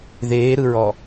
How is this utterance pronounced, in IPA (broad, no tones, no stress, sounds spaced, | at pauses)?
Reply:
ð eː ɾ ɯ ɹ ɔ